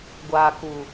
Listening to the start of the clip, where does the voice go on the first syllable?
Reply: low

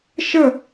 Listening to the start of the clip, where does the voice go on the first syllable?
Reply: falling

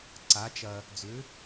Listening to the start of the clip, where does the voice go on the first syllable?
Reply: rising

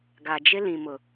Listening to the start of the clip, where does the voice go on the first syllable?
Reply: low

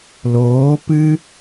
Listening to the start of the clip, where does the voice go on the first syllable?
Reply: rising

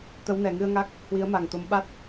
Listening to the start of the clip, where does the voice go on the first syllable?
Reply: rising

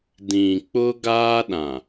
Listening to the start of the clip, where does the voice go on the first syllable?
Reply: low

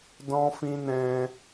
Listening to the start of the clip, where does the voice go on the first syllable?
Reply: high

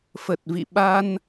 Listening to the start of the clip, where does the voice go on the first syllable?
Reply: low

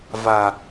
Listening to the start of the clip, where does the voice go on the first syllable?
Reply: low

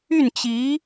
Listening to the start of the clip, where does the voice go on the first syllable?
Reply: falling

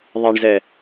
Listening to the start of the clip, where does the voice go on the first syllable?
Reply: low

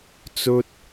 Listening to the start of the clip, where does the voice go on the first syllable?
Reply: high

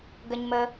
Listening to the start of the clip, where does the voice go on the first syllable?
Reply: low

